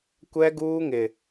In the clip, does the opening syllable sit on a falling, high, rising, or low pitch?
high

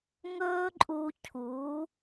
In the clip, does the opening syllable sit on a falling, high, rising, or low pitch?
high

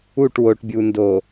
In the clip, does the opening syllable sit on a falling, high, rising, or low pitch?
falling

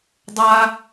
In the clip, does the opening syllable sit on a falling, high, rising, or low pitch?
low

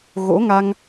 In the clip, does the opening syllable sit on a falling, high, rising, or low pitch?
rising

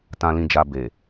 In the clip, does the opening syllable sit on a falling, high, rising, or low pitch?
low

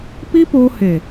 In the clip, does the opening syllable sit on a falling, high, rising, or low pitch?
high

